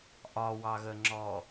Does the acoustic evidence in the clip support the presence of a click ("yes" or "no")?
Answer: yes